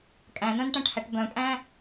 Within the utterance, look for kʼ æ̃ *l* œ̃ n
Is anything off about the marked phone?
yes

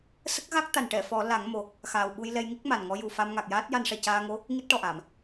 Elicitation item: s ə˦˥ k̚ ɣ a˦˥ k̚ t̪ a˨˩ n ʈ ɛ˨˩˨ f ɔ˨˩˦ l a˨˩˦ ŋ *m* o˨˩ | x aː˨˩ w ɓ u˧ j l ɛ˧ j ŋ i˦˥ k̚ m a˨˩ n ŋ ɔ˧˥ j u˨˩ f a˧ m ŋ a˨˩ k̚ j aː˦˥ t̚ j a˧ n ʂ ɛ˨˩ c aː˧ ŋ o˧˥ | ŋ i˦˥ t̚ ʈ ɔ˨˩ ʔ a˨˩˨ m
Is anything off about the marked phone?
no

